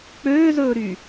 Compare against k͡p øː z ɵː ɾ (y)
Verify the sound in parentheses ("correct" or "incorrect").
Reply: correct